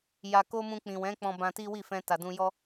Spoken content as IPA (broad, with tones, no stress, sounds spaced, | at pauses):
j a˨ k o˧ m ũ˧ k͡p ĩ˨ w ɛ̃˨˦ k͡p ɔ̃˧ b ã˧ t i˦ w i˦˨ f ɛ̃˧ t a˨ d ũ˧ j ɔ˦